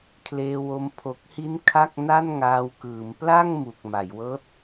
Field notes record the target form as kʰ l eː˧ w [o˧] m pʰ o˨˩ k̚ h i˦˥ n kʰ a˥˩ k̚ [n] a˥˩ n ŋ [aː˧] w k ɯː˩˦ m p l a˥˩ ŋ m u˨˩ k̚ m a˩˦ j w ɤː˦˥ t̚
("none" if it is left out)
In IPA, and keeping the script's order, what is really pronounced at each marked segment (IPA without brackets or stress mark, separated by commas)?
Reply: o˧, n, aː˧